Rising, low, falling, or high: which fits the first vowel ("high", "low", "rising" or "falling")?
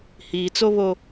low